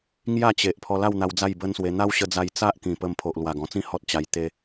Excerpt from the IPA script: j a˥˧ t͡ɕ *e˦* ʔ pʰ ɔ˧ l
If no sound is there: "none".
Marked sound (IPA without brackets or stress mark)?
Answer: e˨